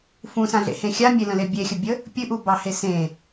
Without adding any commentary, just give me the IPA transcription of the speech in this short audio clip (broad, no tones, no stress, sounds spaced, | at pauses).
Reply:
f ũ s ã ɮ ḛ h ẽ xʲ a mʲ e l ə̃ l e bʲ e xʲ ə bʲ ə | pʲ ɨ ʔ u b ɑ h e s ẽ